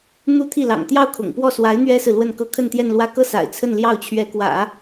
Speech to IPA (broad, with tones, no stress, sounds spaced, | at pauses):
n̪ u˧˥ t̪ʰ i˥˩ l ɑ̰˨˩ ŋ t̪ j ɑ˥˩ ʊ̯ kʰ ʊ̰˨˩ ŋ p w ɔ˥˩ s w a˧˥ ɪ̯ n̪ ɥ ɛ˥ s ɹ̩˨ l w ə˥˧ n k ɤ˥˧ kʰ ə˥˧ n t̪ j ɛ˥˧ n l w ä˥˧ k ɤ˥˩ s a̰˨˩ ɪ̯ t͡sʰ ə˥˧ n l j ɑ˥˩ ʊ̯ t͡ɕʰ ɥ ɛ˧˥ k w ä̰˨˩˦